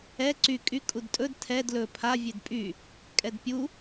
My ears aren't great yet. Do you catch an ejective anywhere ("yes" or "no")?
yes